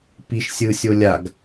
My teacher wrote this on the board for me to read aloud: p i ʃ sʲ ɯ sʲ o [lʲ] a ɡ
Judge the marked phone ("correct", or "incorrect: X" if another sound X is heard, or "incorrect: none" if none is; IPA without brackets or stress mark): correct